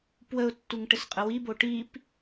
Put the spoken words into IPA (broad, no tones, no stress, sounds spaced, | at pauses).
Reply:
p w ə ʊ̯ tː u ŋ ʈ ɘ s qʼ ə w i b o ʈ i p